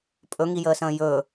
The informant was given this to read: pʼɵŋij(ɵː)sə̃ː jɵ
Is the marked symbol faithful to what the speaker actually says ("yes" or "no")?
no